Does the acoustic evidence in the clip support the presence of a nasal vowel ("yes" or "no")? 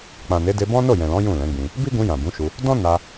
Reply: yes